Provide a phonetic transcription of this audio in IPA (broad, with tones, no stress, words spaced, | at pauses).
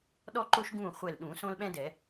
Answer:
ɗɔ˥ǃo˥ʃɡũː˥˨ χʷɛ˧˩lɗũ˨˩˦ sõ˥lɓɛ̃˥dɛ˨˩˦